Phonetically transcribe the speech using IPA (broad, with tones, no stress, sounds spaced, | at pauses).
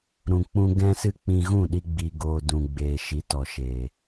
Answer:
ɾ ũ˧ k͡p ũ˦ ɡ ɛ̃˦ s ɨ˦ k͡p ĩ˧ ɣ ũ˦˨ ɗ i˧ ɡ͡b i˨ ɡ oː˨ d ũ˨ ɡ͡b eː˨ ʃ i˨˦ t ɔ˨ ʃ e˨